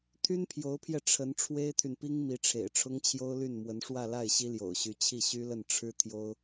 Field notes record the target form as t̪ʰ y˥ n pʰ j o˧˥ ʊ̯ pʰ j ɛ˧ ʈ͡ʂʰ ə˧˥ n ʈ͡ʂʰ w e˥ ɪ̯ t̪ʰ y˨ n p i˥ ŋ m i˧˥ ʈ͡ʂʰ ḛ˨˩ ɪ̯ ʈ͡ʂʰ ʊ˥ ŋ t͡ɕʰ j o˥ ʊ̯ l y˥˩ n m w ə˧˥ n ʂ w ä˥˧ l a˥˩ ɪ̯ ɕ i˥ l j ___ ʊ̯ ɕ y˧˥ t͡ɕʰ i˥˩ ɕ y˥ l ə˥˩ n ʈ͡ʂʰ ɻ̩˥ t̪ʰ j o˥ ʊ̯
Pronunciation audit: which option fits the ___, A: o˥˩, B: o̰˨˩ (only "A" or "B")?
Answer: B